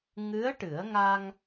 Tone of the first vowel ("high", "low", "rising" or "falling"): rising